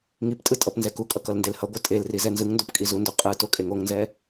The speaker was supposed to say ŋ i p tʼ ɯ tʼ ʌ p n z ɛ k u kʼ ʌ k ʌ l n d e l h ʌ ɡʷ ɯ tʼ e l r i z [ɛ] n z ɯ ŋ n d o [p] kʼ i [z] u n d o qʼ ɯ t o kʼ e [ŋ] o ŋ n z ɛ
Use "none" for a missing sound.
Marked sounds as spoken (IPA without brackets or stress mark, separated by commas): ɛ, p, z, ŋ